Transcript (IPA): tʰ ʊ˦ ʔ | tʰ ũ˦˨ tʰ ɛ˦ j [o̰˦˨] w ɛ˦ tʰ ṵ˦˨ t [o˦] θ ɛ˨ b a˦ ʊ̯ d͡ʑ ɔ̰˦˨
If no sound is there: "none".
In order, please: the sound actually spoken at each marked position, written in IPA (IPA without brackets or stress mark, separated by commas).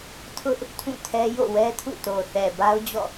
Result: o̰˦˨, o˨